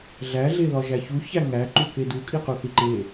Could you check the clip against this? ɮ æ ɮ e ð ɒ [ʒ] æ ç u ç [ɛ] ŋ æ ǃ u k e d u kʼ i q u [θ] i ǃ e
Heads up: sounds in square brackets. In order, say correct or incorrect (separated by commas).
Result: correct, incorrect, correct